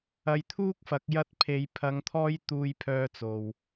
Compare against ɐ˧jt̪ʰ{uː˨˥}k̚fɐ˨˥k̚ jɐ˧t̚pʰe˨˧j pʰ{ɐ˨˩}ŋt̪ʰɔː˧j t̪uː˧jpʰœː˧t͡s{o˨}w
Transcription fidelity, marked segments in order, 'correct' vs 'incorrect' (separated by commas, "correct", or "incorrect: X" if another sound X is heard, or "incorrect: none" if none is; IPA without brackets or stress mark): incorrect: uː˥, incorrect: ɐ˨˧, correct